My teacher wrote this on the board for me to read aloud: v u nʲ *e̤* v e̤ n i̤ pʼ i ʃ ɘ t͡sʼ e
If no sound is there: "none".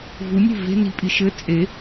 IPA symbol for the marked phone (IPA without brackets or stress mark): e̤